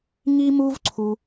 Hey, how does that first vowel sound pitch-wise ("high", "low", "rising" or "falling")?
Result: high